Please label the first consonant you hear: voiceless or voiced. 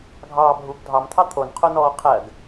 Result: voiced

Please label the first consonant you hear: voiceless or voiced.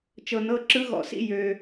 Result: voiceless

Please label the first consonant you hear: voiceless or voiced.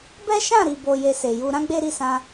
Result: voiced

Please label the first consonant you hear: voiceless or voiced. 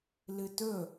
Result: voiced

